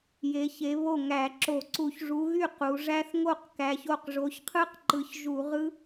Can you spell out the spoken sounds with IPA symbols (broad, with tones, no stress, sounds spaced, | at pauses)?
j e˨˦ ç e˨˦ β o˥˩ ŋ æ˧˩˧ ǁ o˧˩˧ ǀ u˧˩˧ ç ʐ u˨˦ ɣ y˥˩ q u˨˦ ʐ æ˦˥ θ ŋ o˥˩ q k æ˨˦ ç o˥˩ q ʐ o˨˦ ç qʰ ɯ˦˥ q ǃ ɯ˨˦ ç ʒ u˧˩˧ ʁ ɯ˦˥